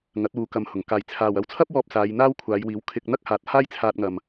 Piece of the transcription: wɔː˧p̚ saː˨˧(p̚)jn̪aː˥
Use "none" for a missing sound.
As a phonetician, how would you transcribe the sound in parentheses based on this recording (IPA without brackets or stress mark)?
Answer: none